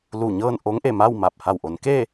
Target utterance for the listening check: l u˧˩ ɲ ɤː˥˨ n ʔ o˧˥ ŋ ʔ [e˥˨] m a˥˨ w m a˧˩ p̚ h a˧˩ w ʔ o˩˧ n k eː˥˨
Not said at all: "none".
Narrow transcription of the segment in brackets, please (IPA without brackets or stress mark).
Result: e˧˩